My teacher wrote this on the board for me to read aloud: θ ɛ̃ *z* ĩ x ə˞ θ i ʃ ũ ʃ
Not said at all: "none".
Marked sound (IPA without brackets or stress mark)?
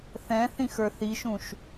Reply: θ